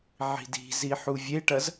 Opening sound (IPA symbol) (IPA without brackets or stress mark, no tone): ʕ